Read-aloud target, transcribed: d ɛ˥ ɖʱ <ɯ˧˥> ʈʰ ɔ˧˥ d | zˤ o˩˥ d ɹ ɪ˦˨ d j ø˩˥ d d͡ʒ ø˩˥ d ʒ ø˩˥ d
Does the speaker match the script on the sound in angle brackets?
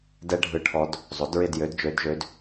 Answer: yes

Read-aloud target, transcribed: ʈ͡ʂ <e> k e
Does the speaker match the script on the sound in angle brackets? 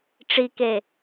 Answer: no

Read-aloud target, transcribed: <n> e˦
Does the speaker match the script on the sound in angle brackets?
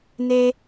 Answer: yes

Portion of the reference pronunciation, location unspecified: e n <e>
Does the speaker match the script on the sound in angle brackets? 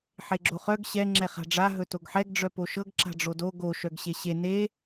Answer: yes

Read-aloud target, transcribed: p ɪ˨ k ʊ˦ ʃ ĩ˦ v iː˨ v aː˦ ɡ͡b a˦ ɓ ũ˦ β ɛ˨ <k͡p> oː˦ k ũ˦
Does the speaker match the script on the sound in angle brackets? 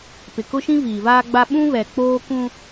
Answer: yes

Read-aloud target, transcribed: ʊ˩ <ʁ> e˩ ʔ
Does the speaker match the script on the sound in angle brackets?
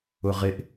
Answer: yes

